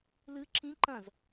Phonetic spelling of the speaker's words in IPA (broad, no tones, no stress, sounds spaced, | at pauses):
l ɨ ǁ ĩ ǃ ɐ̃ z